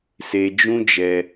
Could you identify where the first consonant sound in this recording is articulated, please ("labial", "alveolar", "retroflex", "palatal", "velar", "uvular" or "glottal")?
alveolar